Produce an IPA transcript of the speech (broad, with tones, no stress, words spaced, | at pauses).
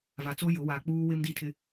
va˨t͡so˦ jʊ˨˦ wa˨k͡puː˦ wɪ˦mdi˦˨tʰɪ˦